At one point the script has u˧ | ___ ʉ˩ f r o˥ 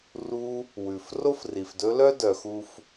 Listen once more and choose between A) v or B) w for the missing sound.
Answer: B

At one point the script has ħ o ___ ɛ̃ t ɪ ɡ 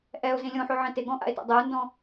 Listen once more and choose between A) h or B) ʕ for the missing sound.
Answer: B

